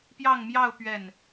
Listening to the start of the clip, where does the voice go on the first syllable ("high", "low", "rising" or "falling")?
falling